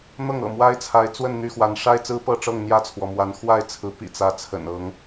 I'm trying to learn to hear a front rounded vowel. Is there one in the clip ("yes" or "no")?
yes